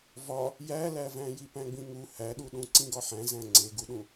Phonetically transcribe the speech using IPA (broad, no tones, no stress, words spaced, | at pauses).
vɒ | jælævæ̃ jipæ̃ɡ͡bĩŋu hæɗuɗũ ǀĩɡɒħæ̃ zæ̃ŋ͡ǀeɡuɗũ